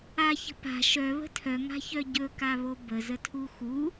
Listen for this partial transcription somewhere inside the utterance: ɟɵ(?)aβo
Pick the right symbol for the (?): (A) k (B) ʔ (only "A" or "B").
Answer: A